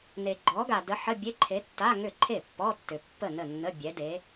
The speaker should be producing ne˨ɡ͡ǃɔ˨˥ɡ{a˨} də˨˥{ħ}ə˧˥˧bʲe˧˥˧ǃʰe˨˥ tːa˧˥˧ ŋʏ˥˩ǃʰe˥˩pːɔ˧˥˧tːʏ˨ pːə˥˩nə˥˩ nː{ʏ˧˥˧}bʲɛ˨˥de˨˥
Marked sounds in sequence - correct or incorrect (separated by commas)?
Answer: correct, correct, incorrect